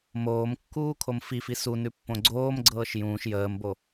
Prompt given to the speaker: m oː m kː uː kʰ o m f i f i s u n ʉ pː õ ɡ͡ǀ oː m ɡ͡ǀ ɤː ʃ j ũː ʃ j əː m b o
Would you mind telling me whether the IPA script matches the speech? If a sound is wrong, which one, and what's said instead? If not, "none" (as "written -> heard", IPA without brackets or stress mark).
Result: none